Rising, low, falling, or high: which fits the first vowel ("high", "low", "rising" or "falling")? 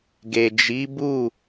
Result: low